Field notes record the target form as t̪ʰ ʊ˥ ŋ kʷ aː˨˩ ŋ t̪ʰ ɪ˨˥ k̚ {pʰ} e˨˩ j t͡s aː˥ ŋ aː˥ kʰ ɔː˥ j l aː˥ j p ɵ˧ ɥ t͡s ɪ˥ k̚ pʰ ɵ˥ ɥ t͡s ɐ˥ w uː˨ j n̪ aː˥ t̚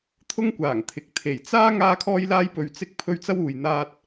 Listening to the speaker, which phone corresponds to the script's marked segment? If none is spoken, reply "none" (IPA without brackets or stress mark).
t̪ʰ